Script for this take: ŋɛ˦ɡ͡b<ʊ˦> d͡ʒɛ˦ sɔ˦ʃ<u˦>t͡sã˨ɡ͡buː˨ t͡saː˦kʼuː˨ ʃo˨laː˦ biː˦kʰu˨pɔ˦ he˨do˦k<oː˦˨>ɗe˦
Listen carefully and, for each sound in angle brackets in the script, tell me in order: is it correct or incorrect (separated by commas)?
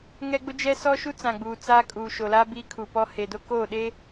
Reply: correct, correct, correct